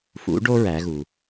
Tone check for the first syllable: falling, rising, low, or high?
rising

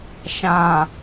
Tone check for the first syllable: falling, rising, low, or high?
low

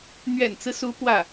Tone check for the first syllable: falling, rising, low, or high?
low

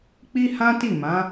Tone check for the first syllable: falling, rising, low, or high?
high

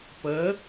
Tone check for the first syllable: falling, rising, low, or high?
rising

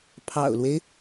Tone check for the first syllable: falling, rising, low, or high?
low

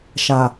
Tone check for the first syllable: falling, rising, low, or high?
low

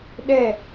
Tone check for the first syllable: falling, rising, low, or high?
falling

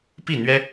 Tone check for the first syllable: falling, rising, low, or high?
falling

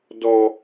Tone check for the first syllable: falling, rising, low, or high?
high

